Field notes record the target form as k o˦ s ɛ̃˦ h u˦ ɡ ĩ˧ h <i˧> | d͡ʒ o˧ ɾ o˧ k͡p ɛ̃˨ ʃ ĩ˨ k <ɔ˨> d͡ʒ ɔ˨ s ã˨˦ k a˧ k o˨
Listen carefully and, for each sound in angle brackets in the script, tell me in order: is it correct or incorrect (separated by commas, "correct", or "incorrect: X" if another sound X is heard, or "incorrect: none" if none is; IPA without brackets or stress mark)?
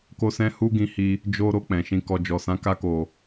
correct, correct